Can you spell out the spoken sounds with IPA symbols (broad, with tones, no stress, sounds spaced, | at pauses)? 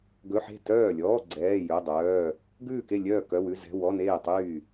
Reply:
ɡ ɵ˧˥˧ ħ e̤˥˨ t œː˥˨ lʲ ɔː˧˥˧ ɡ͡ǀ ɛː˧˥˧ j ɵ˧˥˧ dˤ œː˧˥˧ | ɡ ʉː˥˨ k e˥˨ lʲ œː˥˨ k œ˧˥˧ w ʉ˧˥˧ z ɛ̤˧˥˧ w ɔ˧˥˧ n eː˥˨ tˤ yː˥˨